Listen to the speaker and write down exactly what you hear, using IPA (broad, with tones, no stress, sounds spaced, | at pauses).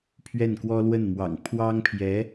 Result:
pʰ ɥ ɛ˥˩ n k w ɔ˥ l w ə˥˩ n m w ɑ̰˨˩ ŋ pʰ w ɑ˥ ŋ pʰ j ɛ˧˥